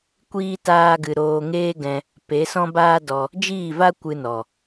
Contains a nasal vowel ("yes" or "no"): yes